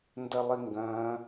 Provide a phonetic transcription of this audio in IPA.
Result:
n d ɐ lˠ i ŋ ɡ ɐ̃ː

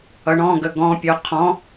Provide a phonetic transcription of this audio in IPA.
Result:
ʌ ɳ ɔ̃ ɡ ə ɡ ɔ̃ pʲ ɔ qʰ ɔ̃

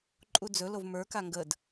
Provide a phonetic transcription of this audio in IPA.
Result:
ǃʼ u d͡z ɵ l o v m ə˞ k a ŋ ɡ ə d

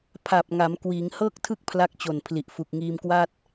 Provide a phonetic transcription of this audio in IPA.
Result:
pʰ a˨˩ p̚ ŋ a˩˦ m k w iː˩˦ ŋ h ɤː˥˩ k̚ tʰ ɯ˥˩ k̚ pʰ l a˦˥ k̚ t͡ɕ o˨˩ n pʰ l i˨˩ ʔ f u˨˩ k̚ ŋ iː˧ m k w a˥˩ t̚

